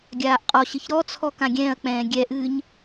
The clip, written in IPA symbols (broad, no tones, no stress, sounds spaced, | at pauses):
ɡʲ aː ʔ qʼ ɔ ɕ ɨ ç ɾ ɔ t͡sʰ ɔ k ã ɡʲ ɛ̃ː ɐ̯ k͡p ɛ̃ː ɡʲ ɛ ʔ ɨː ɲ